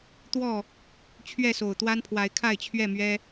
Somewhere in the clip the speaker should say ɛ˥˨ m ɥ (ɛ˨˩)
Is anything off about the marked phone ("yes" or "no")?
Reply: yes